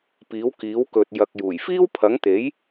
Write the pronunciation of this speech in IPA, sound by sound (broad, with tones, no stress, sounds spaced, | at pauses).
p iː˨˥ w k iː˨˥ w k ɵ˨ t̚ j ɐ˨ k̚ j uː˨˩ j f iː˥ w pʰ ɐ˨˥ ŋ t̪ e˨˥ j